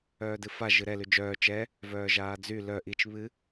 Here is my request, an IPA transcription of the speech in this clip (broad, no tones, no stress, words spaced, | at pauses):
œːdɨfa ʒɨɾɛ lyd͡ʒœː t͡ʃɛ | vœːʒaːd͡zy lœ ʔit͡ʃ βɨ